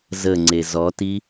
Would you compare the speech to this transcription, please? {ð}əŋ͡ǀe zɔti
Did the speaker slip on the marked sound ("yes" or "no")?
yes